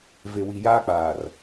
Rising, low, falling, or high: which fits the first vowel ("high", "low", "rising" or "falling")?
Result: low